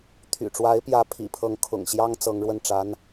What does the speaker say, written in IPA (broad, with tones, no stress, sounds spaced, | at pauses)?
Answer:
t̪ʰ y̰˨˩ ʈ͡ʂ w a˧˥ ɪ̯ p j ä˧˥ pʰ ḭ˨˩ pʰ ɤ˥˩ ŋ kʰ ʊ̰˨˩ ŋ ɕ j ɑ˥ ŋ t͡s ɤ˧˥ ŋ ɻ w ə˥˩ n ʈ͡ʂ a˧˥ n